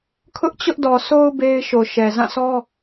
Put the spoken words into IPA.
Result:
kʰ ʊ˦ ʔ t͡ɕ ʊ˦ ʔ d ɔ˨ s o˦ ʊ̯ b e˦ ɪ̯ ʃ o˨ ʃ ɛ˨ z ã˦˨ sʰ ɔ˦

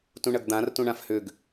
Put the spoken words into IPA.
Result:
t ũ ɳ ɐ ɡ d̪ ã r t ũ ɳ ã f h ʏ ɡ

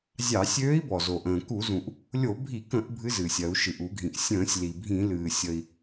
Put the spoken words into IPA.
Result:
zʲ ɑ˧˩˧ sʲ øː˧˥ i̯ b ɔ˩ z o˩ ʔ ə̃ː˩ k u˧˩˧ z ũ˩ ʔ | lʲ o˧˩˧ bʱ i˧˩˧ k ə̃˧˩˧ ʔ bʱ ɨ˧˥ z ɨː˩ sʲ ɜ˧˩˧ u̯ ʃ ɨ˩ ʔ u˧˩˧ ɡʱ ĩ˩ ʔ sʲ ə̃ː˧˩˧ sʲ l i˩ bʱ ĩ˧˩˧ l ɨː˩ sʲ ə˩ i̯

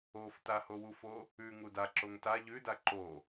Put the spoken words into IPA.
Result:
o f t a h o w u f o | ʉ ŋ u d a ǁ o ŋ t a ʎ ʉ d a ǃ o

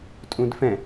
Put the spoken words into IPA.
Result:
tʼ ũ d f ɛ̃

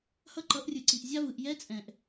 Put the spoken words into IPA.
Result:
h ʌ˦ ǃ ʌ˨˦ ʔ rʲ ɯ˨ ǀ i˨ ʔ zʲ a˦ v ɯ˨ ʔ j ɛ˦ t͡sʼ ɛ̃˨ ʔ

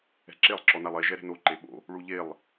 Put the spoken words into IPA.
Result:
ɛ̤ ǁ e lˠ ǁ ɔ n a lˠ e ʒ ɛ ɾ ɛ̤ n o ǃ e ɓ o̰ | ɭ u ʎ e lˠ

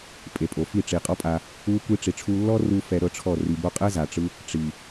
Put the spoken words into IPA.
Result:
pʼ e˨ pʼ o˨ f i˦˨ ʈ͡ʂ i˨ qʼ ɔ˦ pʼ a˧ | u˦ kʷ i˧ ʈ͡ʂ i˨ ʈ͡ʂʰ u˧ lː ɔ˦ r u˦ f ɛ˧ ɾ ɤ˦ ʈ͡ʂʰ ɔ˦˨ r i˨ b o˧ qʼ ɛ˦ z a˨ ʈ͡ʂ ɯ˦ | ʈ͡ʂ i˨

